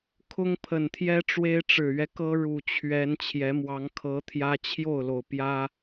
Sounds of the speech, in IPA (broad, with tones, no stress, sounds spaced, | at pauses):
kʰ ʊ˦ ŋ pʰ ə˨˩ n t̪ʰ j ɛ˦ ʈ͡ʂ w e˦ ɪ̯ ʈ͡ʂ ɻ̩˨˩ ɥ ɛ˦ k ɤ˦ ɻ u˨˩ t͡ɕʰ ɥ ɛ˨˦ n t͡ɕʰ j ɛ˨˦ m w ɑ˨˦ ŋ kʰ ɤ˨˦ t̪ʰ j ä˦ t͡ɕʰ j o˥˨ ʊ̯ l o˩ ʊ̯ p j ä˦